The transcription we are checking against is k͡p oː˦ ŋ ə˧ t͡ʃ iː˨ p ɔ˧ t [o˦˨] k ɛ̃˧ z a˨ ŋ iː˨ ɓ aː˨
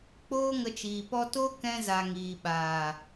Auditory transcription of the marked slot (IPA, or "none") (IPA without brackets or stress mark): o˦